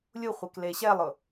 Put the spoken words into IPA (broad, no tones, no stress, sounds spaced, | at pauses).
lʲ u χʷ e k l e ɕ ɛ lˠ ʊ